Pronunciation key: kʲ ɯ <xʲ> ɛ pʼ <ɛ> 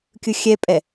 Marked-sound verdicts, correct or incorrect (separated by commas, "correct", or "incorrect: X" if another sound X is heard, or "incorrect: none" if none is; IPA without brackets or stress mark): correct, correct